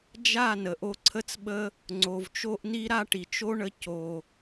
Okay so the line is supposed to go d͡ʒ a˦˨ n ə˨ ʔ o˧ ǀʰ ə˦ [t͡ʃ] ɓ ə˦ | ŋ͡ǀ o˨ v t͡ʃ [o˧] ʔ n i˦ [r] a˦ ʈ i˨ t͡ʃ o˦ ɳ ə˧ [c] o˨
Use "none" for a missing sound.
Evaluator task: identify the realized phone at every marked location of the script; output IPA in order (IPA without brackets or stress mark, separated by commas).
t͡s, o˦, ɾ, c